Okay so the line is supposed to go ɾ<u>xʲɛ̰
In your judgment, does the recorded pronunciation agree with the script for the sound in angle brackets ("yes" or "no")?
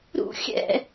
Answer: no